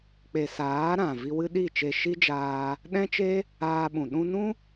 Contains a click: no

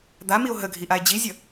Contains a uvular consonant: no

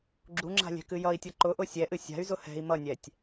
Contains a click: yes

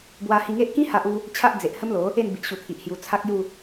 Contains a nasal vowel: yes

